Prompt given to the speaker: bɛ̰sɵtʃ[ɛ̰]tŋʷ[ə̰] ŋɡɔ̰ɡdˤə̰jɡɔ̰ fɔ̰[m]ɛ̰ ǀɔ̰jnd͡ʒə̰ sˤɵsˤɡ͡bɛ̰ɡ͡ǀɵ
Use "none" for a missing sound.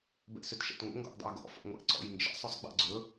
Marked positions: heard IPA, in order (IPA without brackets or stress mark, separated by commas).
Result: ɛ̰, ə̰, ŋʷ